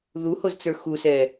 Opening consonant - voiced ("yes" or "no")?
yes